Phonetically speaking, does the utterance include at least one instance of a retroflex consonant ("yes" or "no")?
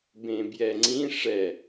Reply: yes